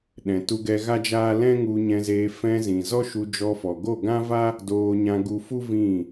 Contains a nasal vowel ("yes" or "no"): yes